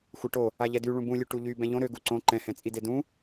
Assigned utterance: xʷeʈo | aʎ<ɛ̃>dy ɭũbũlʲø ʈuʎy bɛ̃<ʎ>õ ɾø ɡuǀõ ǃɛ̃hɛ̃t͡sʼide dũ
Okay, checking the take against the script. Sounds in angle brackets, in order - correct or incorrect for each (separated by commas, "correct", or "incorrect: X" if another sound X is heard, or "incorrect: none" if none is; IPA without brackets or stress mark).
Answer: incorrect: ɛ, correct